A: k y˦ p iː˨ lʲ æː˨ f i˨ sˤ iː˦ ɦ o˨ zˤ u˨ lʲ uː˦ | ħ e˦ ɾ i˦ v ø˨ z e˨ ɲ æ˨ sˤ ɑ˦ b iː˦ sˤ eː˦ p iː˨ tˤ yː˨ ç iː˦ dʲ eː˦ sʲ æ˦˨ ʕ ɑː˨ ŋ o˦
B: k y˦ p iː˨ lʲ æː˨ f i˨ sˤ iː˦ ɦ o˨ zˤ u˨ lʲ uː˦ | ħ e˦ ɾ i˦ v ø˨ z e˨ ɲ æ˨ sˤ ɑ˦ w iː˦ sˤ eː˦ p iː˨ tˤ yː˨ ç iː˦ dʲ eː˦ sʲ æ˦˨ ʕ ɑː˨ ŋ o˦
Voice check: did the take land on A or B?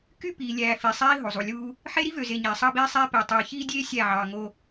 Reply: A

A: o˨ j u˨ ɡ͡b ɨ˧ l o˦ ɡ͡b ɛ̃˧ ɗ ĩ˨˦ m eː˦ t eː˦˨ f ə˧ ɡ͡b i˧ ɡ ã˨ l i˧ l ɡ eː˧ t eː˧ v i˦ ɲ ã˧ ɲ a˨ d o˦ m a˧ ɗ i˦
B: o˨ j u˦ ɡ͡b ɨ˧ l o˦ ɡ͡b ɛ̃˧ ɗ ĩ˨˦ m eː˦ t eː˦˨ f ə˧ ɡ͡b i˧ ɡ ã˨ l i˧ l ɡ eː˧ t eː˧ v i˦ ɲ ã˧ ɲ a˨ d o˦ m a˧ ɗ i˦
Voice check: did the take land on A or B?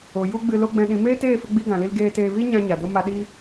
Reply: B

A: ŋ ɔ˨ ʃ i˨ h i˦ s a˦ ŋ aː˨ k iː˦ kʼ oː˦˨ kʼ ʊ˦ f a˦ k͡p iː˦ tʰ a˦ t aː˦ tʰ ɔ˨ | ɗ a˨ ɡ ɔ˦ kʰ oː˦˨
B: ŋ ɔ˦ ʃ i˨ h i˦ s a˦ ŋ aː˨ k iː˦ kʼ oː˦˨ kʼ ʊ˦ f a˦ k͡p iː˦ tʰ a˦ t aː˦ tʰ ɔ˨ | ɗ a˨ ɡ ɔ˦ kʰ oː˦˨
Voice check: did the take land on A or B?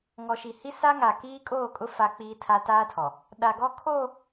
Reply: A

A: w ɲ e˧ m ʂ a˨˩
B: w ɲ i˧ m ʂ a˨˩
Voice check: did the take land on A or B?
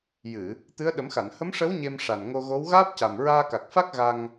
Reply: A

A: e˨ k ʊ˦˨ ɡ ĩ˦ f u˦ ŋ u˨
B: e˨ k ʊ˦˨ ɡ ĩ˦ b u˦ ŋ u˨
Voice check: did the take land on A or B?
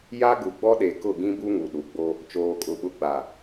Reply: B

